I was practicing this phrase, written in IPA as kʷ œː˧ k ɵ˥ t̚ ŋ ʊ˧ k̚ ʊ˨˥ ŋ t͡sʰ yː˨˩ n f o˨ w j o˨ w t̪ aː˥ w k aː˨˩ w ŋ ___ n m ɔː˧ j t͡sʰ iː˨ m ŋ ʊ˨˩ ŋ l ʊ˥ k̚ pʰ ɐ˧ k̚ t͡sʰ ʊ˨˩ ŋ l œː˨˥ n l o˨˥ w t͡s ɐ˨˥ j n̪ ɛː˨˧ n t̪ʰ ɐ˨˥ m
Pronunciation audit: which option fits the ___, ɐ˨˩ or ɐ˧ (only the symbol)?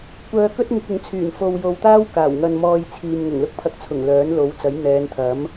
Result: ɐ˧